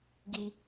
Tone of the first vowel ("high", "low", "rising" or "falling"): high